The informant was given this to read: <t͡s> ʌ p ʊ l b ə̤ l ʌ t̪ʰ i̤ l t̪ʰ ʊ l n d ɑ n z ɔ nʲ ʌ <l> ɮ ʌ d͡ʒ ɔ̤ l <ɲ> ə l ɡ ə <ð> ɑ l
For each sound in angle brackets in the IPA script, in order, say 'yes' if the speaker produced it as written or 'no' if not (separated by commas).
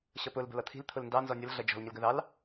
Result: no, yes, yes, yes